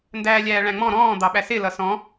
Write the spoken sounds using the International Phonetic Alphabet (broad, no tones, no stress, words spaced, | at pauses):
ndæːlʲæːɭæ̃ŋ͡mɔ̃ ɾɔ̃ː d̪ɑɓæsɪ lʌsɔ̃